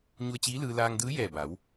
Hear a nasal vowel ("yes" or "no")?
no